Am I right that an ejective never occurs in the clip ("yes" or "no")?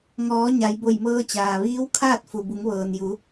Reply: yes